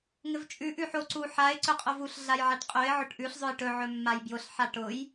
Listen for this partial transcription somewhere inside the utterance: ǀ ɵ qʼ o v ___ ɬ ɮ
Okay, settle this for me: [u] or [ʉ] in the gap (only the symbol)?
u